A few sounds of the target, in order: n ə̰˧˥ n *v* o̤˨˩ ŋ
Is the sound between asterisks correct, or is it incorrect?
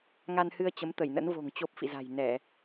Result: correct